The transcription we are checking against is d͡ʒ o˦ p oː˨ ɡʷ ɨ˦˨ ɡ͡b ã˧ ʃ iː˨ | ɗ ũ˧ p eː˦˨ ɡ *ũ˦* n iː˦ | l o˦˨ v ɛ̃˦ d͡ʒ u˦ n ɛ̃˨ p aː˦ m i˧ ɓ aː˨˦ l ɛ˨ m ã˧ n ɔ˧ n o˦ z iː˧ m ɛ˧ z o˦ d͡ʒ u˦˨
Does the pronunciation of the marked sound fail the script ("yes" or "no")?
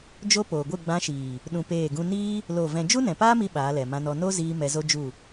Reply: no